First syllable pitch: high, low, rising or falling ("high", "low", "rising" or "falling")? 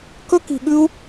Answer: high